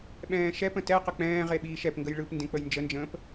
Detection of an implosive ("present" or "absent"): present